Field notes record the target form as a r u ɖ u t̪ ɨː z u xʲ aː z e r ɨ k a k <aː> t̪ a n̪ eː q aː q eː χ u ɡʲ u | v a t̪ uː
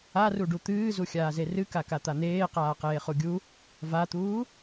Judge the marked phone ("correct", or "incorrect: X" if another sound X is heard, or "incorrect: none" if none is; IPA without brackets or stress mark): incorrect: a